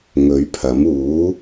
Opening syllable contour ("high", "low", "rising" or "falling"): rising